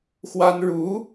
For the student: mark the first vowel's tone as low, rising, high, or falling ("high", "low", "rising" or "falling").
high